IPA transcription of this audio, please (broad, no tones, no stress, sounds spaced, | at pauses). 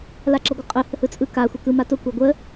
l a ǁ ʌ ɡʷ ə qʼ œ h ə h ɯ t͡sʼ ɯ k a xʷ e k ɯ m a t ʊ kʷ a ɡʷ ə